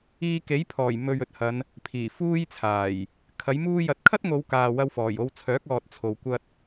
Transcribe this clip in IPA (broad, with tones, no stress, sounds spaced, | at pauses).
iː˧ k e˨˥ j pʰ ɔː˨˩ j m ɵ˨ ɥ ɵ˨ t̚ h ɐ˨˧ n | pʰ iː˨˩ f uː˥ j t͡sʰ aː˨˩ j | kʰ ɐ˨˥ j m uː˥ j ɐ˨ t̚ kʰ ɐ˥ t̚ ŋ o˨˧ w k aː˨ w ɐ˧ w f ɔː˨˩ j o˧ w t͡sʰ œː˨˥ k̚ ɔː˨ t̚ t͡sʰ o˨˧ w kʷ ɐ˥ t̚